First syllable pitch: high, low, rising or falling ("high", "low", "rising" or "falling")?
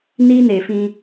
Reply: high